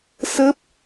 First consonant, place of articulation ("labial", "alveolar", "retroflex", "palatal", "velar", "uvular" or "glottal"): alveolar